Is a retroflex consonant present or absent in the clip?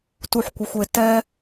absent